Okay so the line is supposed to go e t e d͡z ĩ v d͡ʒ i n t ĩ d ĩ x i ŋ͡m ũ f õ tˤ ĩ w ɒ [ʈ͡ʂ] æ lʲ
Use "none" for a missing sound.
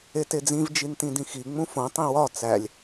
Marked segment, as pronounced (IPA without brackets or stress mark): t͡s